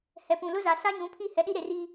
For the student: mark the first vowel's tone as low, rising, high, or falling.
low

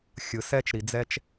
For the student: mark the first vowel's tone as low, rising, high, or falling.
low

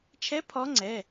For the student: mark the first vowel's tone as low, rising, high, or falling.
rising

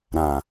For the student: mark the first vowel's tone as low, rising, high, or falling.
low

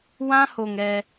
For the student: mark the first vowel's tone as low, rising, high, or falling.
high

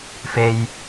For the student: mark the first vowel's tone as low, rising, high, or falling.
low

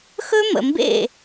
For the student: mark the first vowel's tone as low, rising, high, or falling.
high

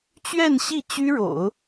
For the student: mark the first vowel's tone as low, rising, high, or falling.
falling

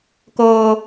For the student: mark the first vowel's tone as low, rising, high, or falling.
high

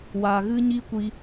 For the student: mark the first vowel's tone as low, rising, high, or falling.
low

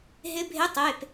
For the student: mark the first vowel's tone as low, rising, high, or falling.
rising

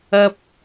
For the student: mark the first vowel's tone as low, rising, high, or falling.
high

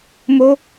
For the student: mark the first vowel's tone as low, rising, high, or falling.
high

